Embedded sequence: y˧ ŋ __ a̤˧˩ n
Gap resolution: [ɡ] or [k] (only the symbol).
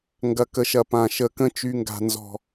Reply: ɡ